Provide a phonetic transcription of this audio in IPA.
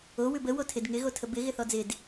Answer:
o w ʉ b ə w o tʰ ɪ d ŋ ɪ ɣ o tʰ ə b ɪ ɣ ɪ θ ɔ d͡z ɪ d

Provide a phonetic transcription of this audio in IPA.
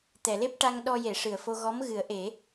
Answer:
t̪ ɛ˨˩˨ l e˦˥ p̚ ʈ a˧ ŋ ɗ ɔ˧ j e˨˩˨ ʂ ɨ˨˩˨ ə̯ f o˧ ɣ ɔ˧˥ m ɣ ɨ˨˩˦ ə̯ ʔ e˨˩˦

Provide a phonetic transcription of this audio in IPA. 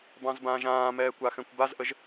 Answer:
b ɑ̃ z b ãː ʒ ãː m ɛː kʷ a x ɛ̃ kʷ b a z ʔ ə ʒ

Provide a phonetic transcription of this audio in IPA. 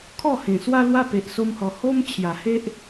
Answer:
kʰ ɔ˥˧ h ẽ˨˩ s w a˦ l w a˦ p e˨ ʔ s o˧ m h ɔ˨˩ h o˦ m t͡ɕʰ j a˨˩ h e˦ ʔ

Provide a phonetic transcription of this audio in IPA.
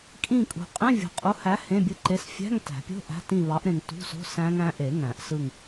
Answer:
kʼ ĩ˦˨ kʼ ṳ˨ qʼ ẽ˧˥˧ vʲ o̤˨ qʼ u˨˥ h æ˨˥ h ẽ˧˥˧ bʲ ɯ˦˨ ǃ e˧˥˧ s fʲ æ̤˧˥˧ ŋ t æ̤˨˩˦ pʲ o̤˧˥˧ ʔ æ̤˧˥˧ t ĩ˦˨ β ɑ˨˥ ʔ ɾ ẽ˨ ŋ t ṳ˧˥˧ s o̤˧˥˧ s æ̃˦˥ ŋ æ̃˦˥ ʔ e˨˩˦ ŋ æ̃˨˩˦ ʔ s ɯ˦˨ ŋ

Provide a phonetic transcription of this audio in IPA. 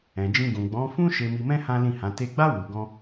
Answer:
ɛ̃˨ d͡ʒ ĩ˧ ɡ ũ˨ ɡ͡b ɔ̃˨˦ f ũ˦ ʃ e˧ m i˧ m ɛ̃˦ h ã˦ l ĩ˦˨ h ã˨˦ t e˧ ɡ͡b a˦ w u˧ ɡ ɔ̃˦

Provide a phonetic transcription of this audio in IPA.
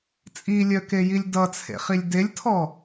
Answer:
t͡sʼ i lʲ œ k e j i lʲ d ʌ t͡sʰ ḛ χ i lʲ d e lʲ tʰ ɔ

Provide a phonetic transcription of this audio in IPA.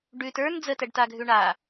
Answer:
ɖ ʉ t ə˞ n d͡z ə t ɛ ɖ t a ɡʱ ʉ ɳ a

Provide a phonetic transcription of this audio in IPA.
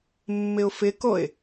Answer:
mː ɪ ʊ̯ f ɪ k o ɪ̯

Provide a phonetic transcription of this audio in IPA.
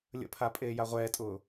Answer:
lʲ ə̰ pʰ a pʼ eː j a ʁʷ ɛː tʼ ʊː

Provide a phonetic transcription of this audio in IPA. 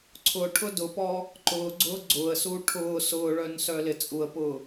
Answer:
ǀʰ ʊ ʈʰ ʊ d ʊ p ɔ | ǃ ʊː ɡ͡ǀ ʊː ɡ͡ǀ ʊː ə̯ s uː ʈʰ ʊː s ʊː ɭ œ n s œ l ɪ t͡sʼ u ə̯ p ʊː

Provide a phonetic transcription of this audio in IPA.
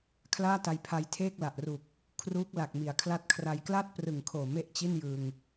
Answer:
kʰ l aː˥˩ t a˧ j pʰ a˧ j tʰ eː˥˩ k̚ l a˨˩ ʔ r u˨˩ k̚ | kʰ r uː˦˥ k̚ l a˨˩ k̚ m i˩˦ a̯ kʰ l a˦˥ t̚ kʰ r a˧ j k l aː˥˩ t̚ p r ɯ˨˩ ŋ kʰ oː˨˩ m e˥˩ ʔ t͡ɕ i˥˩ n j ɯ˧ ŋ

